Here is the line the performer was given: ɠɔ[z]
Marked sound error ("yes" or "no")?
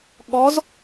no